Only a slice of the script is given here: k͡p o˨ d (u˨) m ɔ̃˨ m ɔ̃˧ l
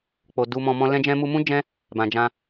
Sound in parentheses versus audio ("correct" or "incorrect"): correct